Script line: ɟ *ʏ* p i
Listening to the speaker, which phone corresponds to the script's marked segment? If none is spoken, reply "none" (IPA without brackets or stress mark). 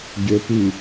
ʏ